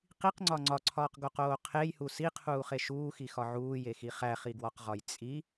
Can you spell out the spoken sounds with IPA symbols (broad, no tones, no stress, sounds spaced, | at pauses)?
q i q ŋ͡ǀ ɒ ŋ͡ǀ ɒ ǀʰ ɒː q ɡ o q oː qʰ e j h u s i qʰ uː χ e ʃ uː x i x ɒ ʕ uː j e x i χ æ χ i ɡ w ɒ q ʁ ɒ j t͡sʼ i